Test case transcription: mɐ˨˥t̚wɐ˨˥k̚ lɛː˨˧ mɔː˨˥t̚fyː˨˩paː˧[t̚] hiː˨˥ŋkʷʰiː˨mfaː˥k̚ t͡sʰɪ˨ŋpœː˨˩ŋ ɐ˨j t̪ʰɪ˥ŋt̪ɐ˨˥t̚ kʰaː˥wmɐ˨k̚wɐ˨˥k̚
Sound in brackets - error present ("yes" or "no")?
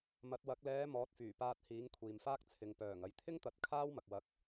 no